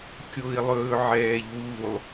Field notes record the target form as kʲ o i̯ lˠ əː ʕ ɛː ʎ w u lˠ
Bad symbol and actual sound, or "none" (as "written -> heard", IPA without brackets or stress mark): əː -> ɵː